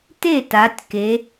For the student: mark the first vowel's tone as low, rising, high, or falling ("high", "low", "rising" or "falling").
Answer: falling